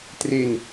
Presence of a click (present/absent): absent